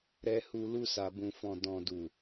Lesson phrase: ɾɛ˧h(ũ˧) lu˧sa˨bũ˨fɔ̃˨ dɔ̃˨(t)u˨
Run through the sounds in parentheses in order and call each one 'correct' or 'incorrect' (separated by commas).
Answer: incorrect, incorrect